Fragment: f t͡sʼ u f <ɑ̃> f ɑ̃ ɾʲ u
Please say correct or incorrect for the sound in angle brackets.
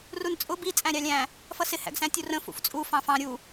correct